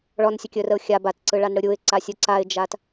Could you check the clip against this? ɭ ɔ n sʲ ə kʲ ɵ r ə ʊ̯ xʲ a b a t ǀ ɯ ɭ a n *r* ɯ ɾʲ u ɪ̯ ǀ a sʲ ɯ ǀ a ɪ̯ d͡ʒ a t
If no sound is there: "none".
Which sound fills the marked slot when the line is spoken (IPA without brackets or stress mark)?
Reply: ɽ